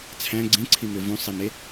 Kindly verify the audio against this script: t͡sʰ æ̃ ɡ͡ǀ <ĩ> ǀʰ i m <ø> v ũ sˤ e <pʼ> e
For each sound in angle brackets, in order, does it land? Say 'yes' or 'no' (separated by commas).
yes, yes, no